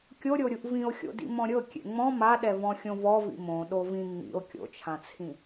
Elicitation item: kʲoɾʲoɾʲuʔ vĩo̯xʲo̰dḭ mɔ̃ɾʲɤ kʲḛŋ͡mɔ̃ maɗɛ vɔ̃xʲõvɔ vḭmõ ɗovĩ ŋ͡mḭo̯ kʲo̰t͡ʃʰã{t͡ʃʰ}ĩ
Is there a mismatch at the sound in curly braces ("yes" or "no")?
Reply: yes